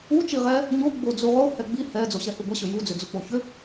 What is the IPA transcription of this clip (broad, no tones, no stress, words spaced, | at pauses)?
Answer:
u t͡ʃiʁɛ | ɲo ɡ͡bod͡zuʁo hɛɡ͡bi hɛ d͡zoɕɛhuɡʷɛ ɕʏju d͡zʏd͡zuk͡poçʏ